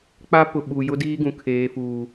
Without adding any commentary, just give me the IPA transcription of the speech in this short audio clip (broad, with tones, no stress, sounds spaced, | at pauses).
k͡p a˦ p ʊ˨ ɓ u˨ j ʊ˦ d iː˦ ɡ ũ˨ kʰ eː˨ f uː˨